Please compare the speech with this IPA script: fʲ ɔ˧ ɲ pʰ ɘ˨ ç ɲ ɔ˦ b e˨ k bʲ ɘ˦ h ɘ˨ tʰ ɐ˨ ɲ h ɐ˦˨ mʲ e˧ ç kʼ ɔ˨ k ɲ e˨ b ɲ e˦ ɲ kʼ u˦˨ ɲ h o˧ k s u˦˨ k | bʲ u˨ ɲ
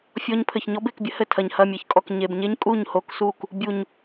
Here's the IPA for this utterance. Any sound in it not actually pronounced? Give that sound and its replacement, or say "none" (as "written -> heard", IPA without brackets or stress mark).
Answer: none